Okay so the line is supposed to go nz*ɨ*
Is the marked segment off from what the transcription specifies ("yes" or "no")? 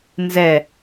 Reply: yes